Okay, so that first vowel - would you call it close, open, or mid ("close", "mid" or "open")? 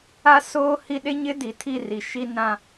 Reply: open